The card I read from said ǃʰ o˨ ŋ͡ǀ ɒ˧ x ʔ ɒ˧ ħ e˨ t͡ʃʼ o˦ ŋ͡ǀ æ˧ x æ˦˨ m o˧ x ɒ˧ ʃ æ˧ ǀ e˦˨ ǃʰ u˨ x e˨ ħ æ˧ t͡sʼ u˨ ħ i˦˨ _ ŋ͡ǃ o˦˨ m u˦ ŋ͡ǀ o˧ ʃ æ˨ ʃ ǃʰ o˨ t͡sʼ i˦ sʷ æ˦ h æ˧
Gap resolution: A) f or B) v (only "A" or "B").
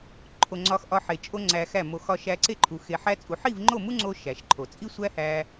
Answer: B